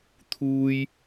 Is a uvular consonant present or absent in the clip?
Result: absent